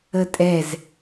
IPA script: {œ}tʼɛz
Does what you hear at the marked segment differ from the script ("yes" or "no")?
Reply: yes